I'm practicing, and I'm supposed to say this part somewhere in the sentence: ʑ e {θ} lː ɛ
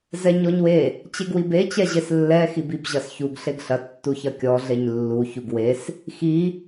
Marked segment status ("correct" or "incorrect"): incorrect